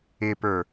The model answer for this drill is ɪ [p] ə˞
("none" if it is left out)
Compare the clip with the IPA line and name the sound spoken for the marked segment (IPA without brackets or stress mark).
p